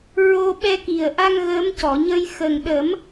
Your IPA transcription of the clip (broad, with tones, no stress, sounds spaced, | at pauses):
ɹ o˧ ɓ ɛ˧ k i˨˩ ə̯ ʔ a˧ ŋ ɣ əː˧˥ m c ɔ˨˩˨ ɲ ə˧ j x ə˨˩ ŋ ɗ ə˨˩˦ m